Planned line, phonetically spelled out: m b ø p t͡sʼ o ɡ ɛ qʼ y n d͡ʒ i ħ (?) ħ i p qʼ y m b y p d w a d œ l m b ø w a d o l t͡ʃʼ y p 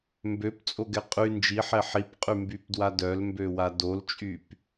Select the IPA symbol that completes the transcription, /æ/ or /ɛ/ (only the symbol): ɛ